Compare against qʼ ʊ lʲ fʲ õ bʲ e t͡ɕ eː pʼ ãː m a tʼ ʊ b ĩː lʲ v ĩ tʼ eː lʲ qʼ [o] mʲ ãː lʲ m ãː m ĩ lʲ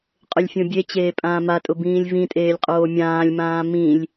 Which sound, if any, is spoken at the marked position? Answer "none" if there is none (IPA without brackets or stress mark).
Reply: oː